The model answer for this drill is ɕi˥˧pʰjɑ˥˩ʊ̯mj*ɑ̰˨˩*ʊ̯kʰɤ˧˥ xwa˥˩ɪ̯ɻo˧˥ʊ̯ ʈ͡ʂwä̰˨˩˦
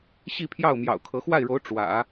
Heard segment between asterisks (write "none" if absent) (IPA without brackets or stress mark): ɑ̰˨˩